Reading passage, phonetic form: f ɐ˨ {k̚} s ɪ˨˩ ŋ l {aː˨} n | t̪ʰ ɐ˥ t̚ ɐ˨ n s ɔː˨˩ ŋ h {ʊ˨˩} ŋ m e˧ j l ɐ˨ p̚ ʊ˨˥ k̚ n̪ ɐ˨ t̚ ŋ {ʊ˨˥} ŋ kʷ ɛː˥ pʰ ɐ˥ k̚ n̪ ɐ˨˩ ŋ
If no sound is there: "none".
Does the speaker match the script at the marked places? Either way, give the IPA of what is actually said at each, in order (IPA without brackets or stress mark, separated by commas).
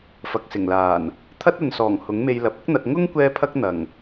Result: k̚, aː˨˩, ʊ˨˥, ʊ˥